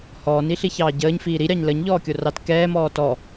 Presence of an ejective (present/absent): absent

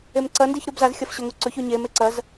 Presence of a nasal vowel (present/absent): absent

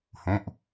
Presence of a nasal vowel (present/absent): present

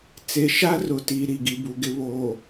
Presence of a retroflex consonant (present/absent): absent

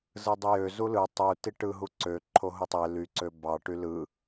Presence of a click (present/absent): present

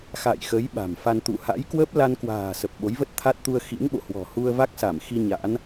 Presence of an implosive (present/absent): present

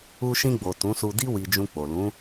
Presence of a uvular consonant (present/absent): absent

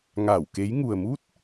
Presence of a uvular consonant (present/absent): absent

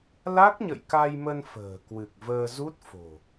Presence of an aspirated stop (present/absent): absent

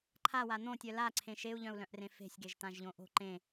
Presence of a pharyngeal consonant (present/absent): absent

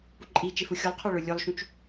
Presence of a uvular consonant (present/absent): present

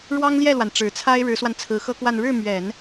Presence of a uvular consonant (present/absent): absent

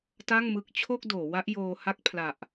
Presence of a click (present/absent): absent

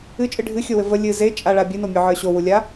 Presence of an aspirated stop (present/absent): absent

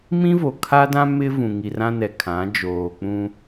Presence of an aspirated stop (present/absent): present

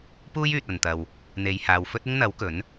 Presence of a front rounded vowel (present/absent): present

